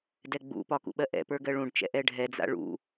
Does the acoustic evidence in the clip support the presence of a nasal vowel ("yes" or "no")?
yes